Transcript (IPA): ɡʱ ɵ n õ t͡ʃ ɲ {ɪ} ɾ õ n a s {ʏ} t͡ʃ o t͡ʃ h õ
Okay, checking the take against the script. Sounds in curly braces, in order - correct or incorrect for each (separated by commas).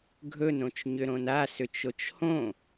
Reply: incorrect, correct